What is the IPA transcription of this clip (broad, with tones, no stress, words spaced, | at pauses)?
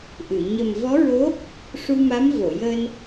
ʔɨ˨˩˨ ɲə˨˩mvɔ˧˥ɹo˧˥ | ʂu˧ma˧˥m vo˨˩˨jəː˧n